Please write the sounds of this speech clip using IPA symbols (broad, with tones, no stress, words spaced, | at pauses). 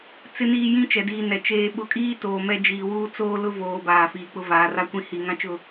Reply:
t͡sɪ˨niː˨ jĩ˦t͡ʃɛ˨diː˨nɛ˨ t͡ʃeː˨ɓʊ˨kʼiː˦ toː˨mɛ˦ d͡ʒiː˨wuː˦ t͡soː˦ lʊ˦voː˨ baː˨fiː˨ k͡pʊ˦vaː˨ra˦ kʷĩ˦hi˨ ŋã˦t͡ʃʊ˦˨